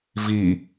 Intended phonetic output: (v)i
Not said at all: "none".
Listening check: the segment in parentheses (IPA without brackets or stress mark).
v